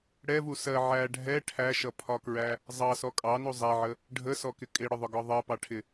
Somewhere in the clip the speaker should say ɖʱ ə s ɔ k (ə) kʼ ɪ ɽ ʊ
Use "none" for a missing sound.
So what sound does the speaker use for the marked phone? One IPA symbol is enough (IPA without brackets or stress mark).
ɪ